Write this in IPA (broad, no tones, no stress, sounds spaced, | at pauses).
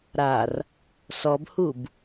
ɾ a r | s ɔ b h u b